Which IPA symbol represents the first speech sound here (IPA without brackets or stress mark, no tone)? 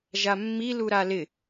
ʒ